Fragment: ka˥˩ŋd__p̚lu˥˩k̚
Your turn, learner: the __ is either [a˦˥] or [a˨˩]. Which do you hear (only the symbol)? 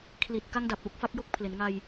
a˨˩